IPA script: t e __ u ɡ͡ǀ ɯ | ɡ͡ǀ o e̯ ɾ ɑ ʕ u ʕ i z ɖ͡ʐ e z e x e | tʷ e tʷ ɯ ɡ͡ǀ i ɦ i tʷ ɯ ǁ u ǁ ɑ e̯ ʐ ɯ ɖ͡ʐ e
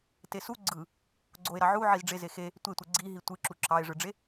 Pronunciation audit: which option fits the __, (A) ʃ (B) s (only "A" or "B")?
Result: B